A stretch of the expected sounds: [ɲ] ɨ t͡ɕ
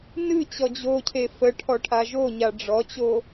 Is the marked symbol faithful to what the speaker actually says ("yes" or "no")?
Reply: no